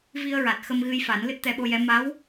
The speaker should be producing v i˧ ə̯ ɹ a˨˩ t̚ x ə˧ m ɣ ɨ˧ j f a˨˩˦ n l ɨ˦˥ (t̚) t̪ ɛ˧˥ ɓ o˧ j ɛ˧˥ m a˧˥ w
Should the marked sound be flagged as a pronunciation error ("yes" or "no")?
no